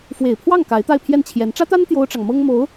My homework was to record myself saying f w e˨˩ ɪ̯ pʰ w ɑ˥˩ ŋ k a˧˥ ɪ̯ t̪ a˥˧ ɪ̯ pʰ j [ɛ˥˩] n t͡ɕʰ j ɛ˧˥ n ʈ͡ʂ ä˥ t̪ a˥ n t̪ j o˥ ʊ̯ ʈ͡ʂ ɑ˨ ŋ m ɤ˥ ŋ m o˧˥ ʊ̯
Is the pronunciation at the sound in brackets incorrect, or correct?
correct